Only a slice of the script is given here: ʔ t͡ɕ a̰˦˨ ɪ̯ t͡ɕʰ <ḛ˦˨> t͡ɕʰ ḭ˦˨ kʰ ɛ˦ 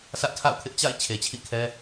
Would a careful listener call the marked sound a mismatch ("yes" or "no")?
yes